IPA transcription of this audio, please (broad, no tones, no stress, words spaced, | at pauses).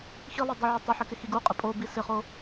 xilˠɘ dˤɪʕɪ tˤɪħɪ kɪxiɡuqʼɪ pʼobi sɪχo